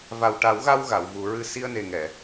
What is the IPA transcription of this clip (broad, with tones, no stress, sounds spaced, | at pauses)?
v a˨˩ w ʈ a˨˩˦ w ɣ a˧ w ɣ a˨˩˨ w v u˨˩˦ ɹ ɨ˧ s i˧ ə̯ n e˨˩ ŋ ɛ˨˩˨